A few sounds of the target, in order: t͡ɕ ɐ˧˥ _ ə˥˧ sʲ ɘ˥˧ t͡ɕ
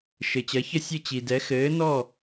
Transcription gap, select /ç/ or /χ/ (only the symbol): ç